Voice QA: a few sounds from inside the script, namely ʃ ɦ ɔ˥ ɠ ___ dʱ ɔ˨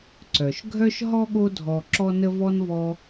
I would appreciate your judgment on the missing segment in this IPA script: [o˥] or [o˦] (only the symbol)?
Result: o˦